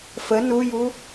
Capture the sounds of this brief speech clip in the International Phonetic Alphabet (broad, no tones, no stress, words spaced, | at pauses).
fə nuju